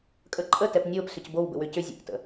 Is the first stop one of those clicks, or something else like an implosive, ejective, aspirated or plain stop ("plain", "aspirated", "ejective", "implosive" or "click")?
ejective